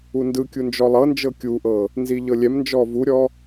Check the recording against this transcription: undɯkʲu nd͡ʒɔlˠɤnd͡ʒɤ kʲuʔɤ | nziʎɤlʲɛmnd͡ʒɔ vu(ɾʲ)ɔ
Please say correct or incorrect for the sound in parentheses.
correct